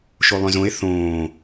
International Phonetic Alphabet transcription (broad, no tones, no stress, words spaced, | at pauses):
ʃolˠœ̃zõe̯ θõː